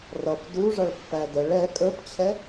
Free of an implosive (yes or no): yes